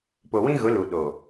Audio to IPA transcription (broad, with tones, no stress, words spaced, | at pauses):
po˨wĩ˦ɣʊ˨˦ lu˨ ɗo˨